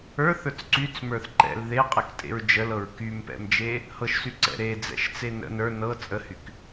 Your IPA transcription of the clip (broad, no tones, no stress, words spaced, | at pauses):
ə˞θə˞t͡s ǀyt͡smə˞θ ǃɛ̰l ðeqʼɛktʼḛɹ d͡ʒəlɤɹ kympɛ̰md͡ʒe | hɤʃsyǀɛ̰ ɾed͡zɛ̰ʃt͡se nə̰ nə˞ nɤ t͡sʼəhyk